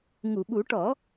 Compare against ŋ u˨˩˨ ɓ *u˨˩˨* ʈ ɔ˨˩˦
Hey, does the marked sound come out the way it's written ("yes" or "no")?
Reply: no